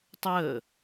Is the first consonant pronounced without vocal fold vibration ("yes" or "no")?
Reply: yes